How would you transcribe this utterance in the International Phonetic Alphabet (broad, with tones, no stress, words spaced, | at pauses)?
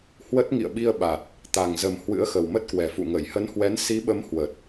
hwə˦˥t̚ ŋḭ˧˨ə̯ɓi˧ə̯ɓa˨˩t̚ | t̪a˨˩ŋzə˨˩m hwɨ̰˧˥ə̯xə˨˩wmə˦˥t̚kwɛ˨˩ fṵ˧˨ŋə˧˩jhə˨˦nhwɛ˨˦n si˨˦ɓə˨˦m hwə˨˩t̚